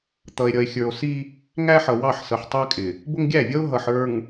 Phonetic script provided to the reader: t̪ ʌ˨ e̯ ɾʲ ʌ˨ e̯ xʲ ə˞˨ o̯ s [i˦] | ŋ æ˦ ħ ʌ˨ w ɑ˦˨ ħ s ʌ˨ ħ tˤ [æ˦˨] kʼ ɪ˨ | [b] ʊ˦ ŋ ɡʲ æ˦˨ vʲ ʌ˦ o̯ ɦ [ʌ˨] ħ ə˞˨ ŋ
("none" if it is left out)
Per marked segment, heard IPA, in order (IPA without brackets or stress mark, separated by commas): i˦, æ˦, b, ʌ˨